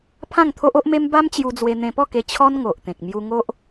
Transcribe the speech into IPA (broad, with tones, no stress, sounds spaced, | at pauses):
pʰ ã˥˧ ŋ t̪ʰ o˦ ʔ o˦ ʔ m e˦ m b a˦ m t͡ɕ j u˧ d͡z w e˧ n̪ ẽ˧ p ɔ˥˧ k e˧ t͡ɕʰ ɔ˦ n ŋ o˨ ʔ t̪ ẽ˨ k̚ m j u˧ ŋ o˦ ʔ